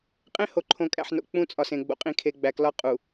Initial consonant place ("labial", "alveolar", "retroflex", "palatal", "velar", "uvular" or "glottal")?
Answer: uvular